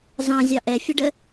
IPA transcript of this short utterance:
z ɑ̃ zʲ ɑ ʔ ɛ fʲ ʊ ɖ ə

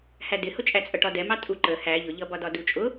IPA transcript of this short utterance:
h æ d ɪ h ʊ t͡ʃʼ æ t͡sʼ ʌ ʈ ɒ d ɛ m ɑ tʼ u ǃ ə h æ ʎ ʊ ʎ ʌ b ɒ d ɒ d u t͡ʃʼ ʊ

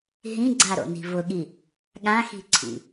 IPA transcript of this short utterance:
ɦ ĩ ɡ͡ǀ a ɾ o̰ n i̤ v ʊ ɠ i | ɠ ã x i̤ ǀʰ ḭ

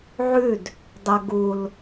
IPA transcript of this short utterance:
ʕ ʉ d | dˤ ɐ ɡ u l

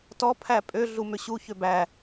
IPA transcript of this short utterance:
t ɔ pʰ æ pʼ ø ɮ u m ø ɕ u ç ø b æ

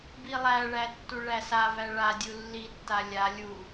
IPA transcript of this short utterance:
b i lˠ æ ɭ æ tː u ɭ æ s a v æ ɭ a dʲ u lː i tː a lʲ a lʲ u

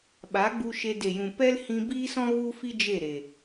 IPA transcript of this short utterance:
ɓ a˨˦ ɡ͡b u˧ ʃ e˧ d e˨ j ũ˨ p ɛ˦ l h ĩ˧ b iː˦ s ɔ̃˦ ɣ u˦ f i˦ d͡ʒ e˦˨ ɾ e˨

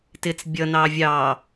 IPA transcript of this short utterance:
t ɪ t͡s bʲ ʌ n ɑ vʲ ɑ

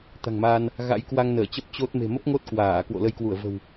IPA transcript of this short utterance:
t̪ a̤˨˩ ŋ m aː˧ n | ɣ a̰˧˥ j k w a˧ ŋ n əː˧˩ t͡ɕ ə˦˥ p̚ t͡ɕ o˦˥ t̚ m e̤˨˩ m ə˦˥ p̚ ŋ o˦˥ t̚ k w aː˧˩ k w o̰˧˨ l ə˧ j k w u˧˩ ə̯ v ə̤˨˩ w

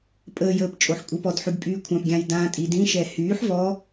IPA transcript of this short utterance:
pʼ əː j əː p t͡ʃʼ o ħ kʷʼ i p ɔ d ħ y ɡ pʼ yː kʷʰ ã p ɡʲ ã j d ã tʼ i d ĩ ʃ ɛ h yː ħ v ɔ

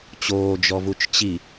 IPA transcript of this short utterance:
t͡ɕ oː d͡ʒ ɔ v u t͡ʃ t͡ɕ i

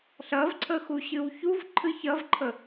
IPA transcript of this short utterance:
ɬ ɐ v ǀʰ ə x u ɕ ɨ w ç u v ǃʰ ɨ ç ɐ v ǃʰ ə

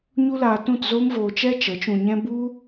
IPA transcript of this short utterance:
ɲ u˦ l aː˧ t ũ˦˨ t z oː˦ m v oː˧ t͡ʃ ɛ˦ t͡ʃ ə˨˦ t͡ʃ ũ˧ ɲ ɛ̃˦ b u˦

